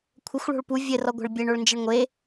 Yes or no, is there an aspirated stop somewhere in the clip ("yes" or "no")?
yes